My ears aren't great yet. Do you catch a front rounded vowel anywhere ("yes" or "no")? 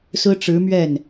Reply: no